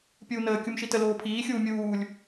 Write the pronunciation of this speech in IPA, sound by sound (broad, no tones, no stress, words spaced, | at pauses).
pʲuːnəː kʲumʃitə loːpʰiːxʲuː mʲuːlʲ